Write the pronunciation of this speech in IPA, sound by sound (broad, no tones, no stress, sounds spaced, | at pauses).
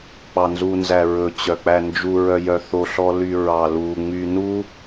k͡p ɑ n z u n z æ ɹ ɵ t͡ɕ œ k͡p æ n d͡ʒ u ɹ œ j œ θ o ɬ ɔ l y ɹ ɑ l u ŋ͡m y n u